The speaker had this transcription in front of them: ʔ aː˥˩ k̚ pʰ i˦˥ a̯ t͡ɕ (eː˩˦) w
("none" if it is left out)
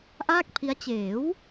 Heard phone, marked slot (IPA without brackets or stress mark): eː˩˦